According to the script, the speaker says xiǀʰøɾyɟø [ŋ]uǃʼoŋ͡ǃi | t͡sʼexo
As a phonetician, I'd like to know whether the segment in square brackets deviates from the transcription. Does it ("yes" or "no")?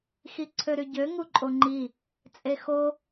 no